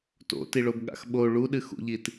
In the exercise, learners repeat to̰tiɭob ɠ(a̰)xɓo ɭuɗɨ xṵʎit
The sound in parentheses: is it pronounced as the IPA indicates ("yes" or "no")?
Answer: yes